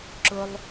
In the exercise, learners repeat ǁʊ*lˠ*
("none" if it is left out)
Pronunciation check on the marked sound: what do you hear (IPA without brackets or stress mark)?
lˠ